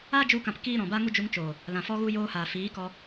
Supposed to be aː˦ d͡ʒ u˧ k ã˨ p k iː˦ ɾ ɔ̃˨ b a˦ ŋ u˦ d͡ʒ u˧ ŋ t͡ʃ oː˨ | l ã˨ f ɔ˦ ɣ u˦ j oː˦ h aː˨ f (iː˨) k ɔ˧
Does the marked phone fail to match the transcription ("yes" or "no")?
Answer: yes